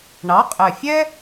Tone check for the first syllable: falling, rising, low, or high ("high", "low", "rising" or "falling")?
rising